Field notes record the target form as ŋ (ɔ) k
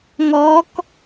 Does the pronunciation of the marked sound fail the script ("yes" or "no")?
no